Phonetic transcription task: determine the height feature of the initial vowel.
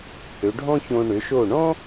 mid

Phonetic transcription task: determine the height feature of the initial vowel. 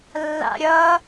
low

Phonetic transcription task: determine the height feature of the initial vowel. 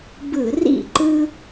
high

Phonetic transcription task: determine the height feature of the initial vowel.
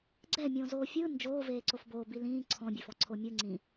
mid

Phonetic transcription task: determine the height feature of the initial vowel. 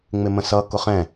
high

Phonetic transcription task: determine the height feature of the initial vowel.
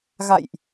low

